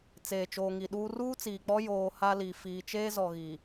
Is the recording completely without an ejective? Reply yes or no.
yes